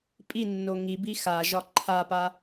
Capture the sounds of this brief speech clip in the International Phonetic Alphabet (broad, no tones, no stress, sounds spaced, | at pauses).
pʼ i nː o ŋ i b i x a ʒ ɒ ǃʰ a p a